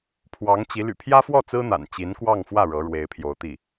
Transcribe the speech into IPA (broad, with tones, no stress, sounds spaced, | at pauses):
pʰ w ɑ˧˥ ŋ t͡ɕ i˧˥ l y̰˨˩ pʰ j ä˥ f w ɔ˥˩ t͡s ɹ̩˥ n̪ a̰˨˩ n t͡ɕ i˧˥ n k w ɑ˥˧ ŋ f w ä˥˩ ɻ ɤ˧˥ ɻ w e˧˥ ɪ̯ pʰ j o˧˥ ʊ̯ t̪ i˥˩